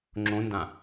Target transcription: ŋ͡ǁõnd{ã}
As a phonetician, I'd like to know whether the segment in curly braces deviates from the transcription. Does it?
no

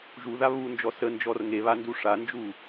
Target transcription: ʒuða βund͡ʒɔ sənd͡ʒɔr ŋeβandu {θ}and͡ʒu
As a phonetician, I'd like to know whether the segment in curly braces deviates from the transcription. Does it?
yes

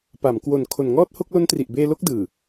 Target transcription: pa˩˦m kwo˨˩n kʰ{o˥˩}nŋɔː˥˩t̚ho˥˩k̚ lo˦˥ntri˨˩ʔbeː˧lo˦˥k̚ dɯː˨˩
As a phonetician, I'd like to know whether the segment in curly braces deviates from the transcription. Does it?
yes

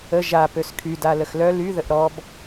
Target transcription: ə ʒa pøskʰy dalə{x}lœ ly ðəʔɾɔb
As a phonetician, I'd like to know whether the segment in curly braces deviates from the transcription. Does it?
no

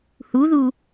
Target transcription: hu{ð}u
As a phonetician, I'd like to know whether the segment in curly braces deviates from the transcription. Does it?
no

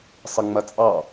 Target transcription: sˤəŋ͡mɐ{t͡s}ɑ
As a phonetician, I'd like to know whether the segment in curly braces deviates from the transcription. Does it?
yes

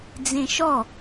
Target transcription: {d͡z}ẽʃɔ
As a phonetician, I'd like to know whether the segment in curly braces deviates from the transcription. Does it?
no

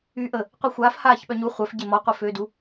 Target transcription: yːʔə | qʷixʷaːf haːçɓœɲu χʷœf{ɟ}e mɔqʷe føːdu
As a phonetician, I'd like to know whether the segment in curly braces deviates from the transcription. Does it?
no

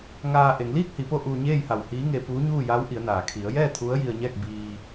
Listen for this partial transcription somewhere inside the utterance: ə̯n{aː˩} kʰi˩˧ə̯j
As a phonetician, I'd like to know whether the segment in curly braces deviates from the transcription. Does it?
no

